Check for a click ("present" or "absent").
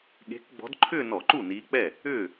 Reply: present